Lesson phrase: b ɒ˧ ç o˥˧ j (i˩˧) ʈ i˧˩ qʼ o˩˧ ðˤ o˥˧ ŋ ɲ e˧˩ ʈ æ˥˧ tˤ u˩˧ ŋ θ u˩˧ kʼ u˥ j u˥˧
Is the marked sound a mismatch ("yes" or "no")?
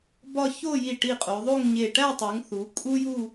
yes